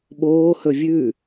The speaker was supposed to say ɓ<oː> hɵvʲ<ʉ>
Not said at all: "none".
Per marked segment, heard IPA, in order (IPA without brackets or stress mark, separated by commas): oː, ʉ